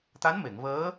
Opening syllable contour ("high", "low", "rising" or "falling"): rising